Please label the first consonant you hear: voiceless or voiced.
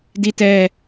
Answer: voiced